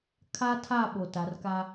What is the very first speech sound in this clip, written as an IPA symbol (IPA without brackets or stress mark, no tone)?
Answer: kʰ